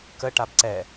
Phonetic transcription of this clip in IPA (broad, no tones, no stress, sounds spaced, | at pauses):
k ə ʈ a b ǀ ɛ